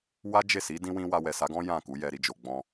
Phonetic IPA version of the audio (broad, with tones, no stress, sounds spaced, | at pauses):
w a˦ d͡ʒ e˦˨ s i˨˦ d ĩ˧ w ĩ˧ w a˧ w ɛ˨ s a˨˦ ɡ ɔ̃˦ j ã˦˨ k u˨˦ j ɛ˧ ɾ i˧ d͡ʒ o˨ ɡ͡b ɔ̃˧